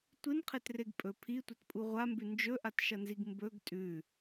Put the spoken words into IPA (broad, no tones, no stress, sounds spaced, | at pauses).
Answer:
tʷ ɨ n qʰ e t r e ɡ pʼ ɵ pʰ i tʷ ɐ t pʼ u ʁʷ a m b ʉ n d͡ʒ ɵ ʔ a t ʃ ɐ n z i ɡ m b ɵ ɡ tʼ ʉ